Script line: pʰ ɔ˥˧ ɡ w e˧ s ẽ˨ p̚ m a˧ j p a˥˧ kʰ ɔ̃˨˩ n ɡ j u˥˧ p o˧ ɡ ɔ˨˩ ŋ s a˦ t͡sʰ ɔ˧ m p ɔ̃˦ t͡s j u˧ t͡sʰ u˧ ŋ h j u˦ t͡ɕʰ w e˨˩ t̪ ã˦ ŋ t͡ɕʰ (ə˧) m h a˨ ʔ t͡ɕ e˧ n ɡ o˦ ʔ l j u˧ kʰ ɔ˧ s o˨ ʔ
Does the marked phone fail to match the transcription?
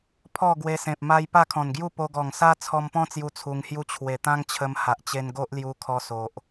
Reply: no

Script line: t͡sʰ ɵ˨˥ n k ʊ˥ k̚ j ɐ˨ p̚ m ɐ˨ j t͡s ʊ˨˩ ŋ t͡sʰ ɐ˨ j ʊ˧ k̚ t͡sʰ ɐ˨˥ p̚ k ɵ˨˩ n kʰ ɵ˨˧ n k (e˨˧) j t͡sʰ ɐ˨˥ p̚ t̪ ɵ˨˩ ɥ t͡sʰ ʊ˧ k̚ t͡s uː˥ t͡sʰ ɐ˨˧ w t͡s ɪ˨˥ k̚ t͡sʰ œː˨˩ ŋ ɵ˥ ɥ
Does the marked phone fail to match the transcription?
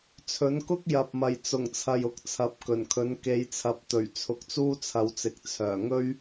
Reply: no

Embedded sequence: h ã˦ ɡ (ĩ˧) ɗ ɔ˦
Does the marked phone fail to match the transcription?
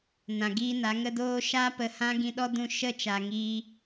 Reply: no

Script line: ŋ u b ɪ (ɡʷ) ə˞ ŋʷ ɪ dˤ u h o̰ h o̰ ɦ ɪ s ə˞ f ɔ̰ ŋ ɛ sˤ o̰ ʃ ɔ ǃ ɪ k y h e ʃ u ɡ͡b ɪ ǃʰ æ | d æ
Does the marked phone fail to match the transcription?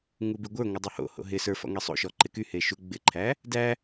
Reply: no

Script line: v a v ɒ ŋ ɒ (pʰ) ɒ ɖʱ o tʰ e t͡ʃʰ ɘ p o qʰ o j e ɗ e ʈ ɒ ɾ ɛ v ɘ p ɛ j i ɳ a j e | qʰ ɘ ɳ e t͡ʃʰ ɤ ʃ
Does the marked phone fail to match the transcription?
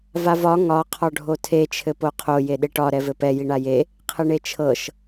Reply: yes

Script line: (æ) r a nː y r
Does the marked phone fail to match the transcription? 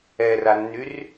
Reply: yes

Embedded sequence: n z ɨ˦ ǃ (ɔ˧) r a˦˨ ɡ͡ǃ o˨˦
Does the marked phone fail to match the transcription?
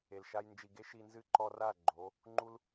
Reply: no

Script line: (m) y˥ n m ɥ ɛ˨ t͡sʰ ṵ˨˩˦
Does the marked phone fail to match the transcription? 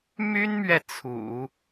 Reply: no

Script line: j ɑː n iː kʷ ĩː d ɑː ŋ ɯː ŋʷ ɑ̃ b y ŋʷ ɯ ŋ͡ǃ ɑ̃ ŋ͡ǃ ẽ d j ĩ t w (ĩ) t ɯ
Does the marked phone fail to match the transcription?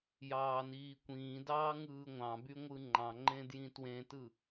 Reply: yes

